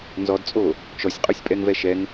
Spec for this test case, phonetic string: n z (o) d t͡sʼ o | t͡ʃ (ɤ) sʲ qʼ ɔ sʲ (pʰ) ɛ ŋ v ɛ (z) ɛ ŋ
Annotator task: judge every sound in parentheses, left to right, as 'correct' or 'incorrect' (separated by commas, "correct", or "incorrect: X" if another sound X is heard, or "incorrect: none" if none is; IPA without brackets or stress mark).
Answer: incorrect: ɔ, incorrect: ɔ, incorrect: pʼ, incorrect: ʃ